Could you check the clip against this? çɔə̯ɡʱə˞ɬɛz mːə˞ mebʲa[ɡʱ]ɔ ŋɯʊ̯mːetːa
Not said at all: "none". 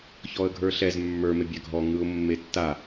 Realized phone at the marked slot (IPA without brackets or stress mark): ɡʱ